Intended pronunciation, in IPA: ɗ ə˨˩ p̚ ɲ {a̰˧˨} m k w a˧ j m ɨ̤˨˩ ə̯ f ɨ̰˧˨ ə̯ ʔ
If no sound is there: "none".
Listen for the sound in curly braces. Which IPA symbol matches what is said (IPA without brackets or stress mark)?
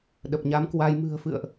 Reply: a˨˦